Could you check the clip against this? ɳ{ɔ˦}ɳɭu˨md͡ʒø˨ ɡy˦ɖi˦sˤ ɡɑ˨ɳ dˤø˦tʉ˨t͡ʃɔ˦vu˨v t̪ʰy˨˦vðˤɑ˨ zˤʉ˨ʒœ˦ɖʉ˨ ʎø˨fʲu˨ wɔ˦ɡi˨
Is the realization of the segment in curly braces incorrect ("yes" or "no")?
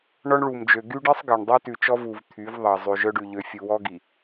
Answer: no